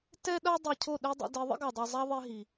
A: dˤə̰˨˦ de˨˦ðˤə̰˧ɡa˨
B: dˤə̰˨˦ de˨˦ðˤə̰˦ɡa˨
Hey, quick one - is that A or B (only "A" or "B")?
B